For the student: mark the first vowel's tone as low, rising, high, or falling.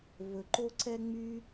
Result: low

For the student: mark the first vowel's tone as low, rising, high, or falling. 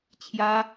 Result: high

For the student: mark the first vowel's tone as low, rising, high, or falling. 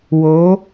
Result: rising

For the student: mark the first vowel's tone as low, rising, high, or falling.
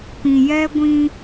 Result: low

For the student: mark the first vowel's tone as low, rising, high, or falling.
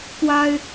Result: high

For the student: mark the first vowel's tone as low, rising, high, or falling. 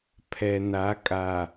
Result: low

